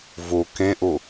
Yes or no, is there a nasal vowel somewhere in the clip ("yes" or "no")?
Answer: yes